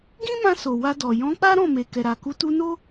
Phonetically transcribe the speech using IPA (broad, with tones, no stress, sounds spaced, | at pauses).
ɡ ĩ˦ m ã˧ s o˨ w a˧ d ɔ˨ j ɔ̃˨˦ k͡p a˦ ɾ ɔ̃˦˨ m e˨ k ɛ˨ ɾ a˨ k u˨˦ t u˧ n o˦